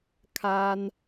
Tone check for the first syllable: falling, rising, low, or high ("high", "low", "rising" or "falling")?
high